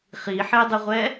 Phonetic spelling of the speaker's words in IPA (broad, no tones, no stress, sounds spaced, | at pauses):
χ i ħ e dˤ ɨ ʁʷ ɛ